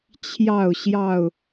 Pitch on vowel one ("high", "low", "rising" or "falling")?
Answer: falling